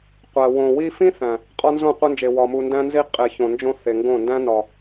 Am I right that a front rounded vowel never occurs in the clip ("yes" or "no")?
yes